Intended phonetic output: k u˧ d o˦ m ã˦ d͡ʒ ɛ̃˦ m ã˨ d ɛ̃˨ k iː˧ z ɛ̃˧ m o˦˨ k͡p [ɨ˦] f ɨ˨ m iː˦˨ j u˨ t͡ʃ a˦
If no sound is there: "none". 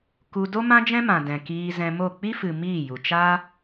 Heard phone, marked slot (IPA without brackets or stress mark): i˦